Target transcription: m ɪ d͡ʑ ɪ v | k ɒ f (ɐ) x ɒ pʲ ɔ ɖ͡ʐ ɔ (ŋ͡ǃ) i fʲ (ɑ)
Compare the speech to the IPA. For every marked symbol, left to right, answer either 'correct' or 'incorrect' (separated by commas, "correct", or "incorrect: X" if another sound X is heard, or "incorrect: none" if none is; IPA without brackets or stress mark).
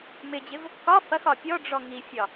correct, incorrect: ŋ, incorrect: ɒ